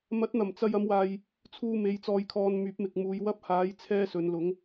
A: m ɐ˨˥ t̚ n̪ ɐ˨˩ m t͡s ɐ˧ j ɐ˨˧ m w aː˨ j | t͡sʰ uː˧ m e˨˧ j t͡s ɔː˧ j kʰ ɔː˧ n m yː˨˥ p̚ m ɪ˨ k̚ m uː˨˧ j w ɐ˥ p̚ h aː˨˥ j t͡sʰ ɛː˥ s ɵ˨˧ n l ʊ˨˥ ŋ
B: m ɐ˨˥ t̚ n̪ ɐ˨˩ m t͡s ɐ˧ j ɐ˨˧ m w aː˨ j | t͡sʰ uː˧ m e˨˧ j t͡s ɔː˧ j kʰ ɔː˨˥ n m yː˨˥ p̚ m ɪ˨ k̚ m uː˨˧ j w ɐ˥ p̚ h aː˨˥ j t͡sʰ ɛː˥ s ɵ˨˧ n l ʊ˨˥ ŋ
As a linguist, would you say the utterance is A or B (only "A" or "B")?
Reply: A